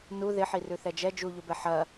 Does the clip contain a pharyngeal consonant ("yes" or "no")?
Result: yes